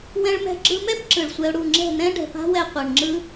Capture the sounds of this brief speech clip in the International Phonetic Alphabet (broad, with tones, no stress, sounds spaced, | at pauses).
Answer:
w ɛ̃˧ ɭ m ɛ̤˧ ɡ͡ǁ ɯ˧ m ɛ˦ b ǁ ɯ˨ ɭ sʷ ɛ˧ ʊ̯ ɽ u˦˨ ŋ͡ǁ ɛ̤˦˨ n̪ ɛ̃˦ ɖ ɛ̤˨ p a̤˦ w ɛ˧ qʷ ɛ˨ ɳ ŋ͡ǁ ɯ˦